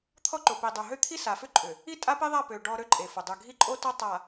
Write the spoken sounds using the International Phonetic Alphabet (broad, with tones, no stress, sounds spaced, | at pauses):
t̪ʰ ɔ˦ ǃ o˨ p i˨ dˤ o˨ ɦ ø˦ t̪ʰ i˦ s a˨ f ʏ˦ ǃʼ ʏ˨ | i˦ tʼ a˦ p e˦ ðˤ a˦˨ p ø˨ ɖ ɔ˦ ɾ ø˦ ǃʼ e˨ f ʊ˨ dˤ ʏ˨ ɡʱ i˦ ǃʼ o˦ t ɔ˦ tˤ a˨